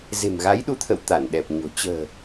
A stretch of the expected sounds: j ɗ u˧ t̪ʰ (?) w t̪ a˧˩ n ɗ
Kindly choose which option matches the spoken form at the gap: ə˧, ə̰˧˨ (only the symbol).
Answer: ə̰˧˨